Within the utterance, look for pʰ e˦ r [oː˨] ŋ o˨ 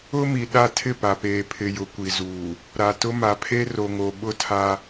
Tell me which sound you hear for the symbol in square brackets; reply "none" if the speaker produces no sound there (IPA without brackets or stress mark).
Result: o˨